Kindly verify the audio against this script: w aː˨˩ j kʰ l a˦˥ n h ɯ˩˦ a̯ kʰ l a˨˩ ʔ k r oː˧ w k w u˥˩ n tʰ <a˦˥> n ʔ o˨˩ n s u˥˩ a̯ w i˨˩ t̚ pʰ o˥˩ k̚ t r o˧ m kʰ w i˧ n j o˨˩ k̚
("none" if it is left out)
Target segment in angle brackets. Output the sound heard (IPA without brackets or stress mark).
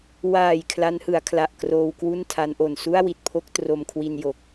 a˦˥